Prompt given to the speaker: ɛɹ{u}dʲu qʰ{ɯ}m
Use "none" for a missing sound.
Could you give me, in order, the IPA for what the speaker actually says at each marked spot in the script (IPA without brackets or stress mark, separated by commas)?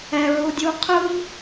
u, ɯ